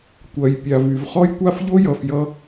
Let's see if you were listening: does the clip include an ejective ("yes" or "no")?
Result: no